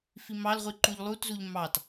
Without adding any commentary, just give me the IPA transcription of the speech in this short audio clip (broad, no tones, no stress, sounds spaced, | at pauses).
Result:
f i m ɑ l ʁʷ i ǃ u ʎ lˠ u t z u ʎ m ɑ t